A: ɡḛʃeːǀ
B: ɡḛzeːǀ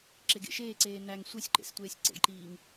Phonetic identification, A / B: A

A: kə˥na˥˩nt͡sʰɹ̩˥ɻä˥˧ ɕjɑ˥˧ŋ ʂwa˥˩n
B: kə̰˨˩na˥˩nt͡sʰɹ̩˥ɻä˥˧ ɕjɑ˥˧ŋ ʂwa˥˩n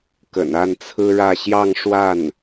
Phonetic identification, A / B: B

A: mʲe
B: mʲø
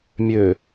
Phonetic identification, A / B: B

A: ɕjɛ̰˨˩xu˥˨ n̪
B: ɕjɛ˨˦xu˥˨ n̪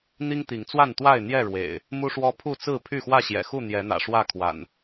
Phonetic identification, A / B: A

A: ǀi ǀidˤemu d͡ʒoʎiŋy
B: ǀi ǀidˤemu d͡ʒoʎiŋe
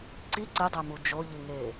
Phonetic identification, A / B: B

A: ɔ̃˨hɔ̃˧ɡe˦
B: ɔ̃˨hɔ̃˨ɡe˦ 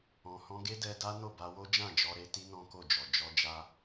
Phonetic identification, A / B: A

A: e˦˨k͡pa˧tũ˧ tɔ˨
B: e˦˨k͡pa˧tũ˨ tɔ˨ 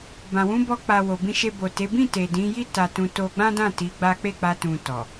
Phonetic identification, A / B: B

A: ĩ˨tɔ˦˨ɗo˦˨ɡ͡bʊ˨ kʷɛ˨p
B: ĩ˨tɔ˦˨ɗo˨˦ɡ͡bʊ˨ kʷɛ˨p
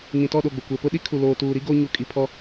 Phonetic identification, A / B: A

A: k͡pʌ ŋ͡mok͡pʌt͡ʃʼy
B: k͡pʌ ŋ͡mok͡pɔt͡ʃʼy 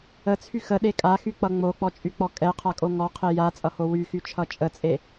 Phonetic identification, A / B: B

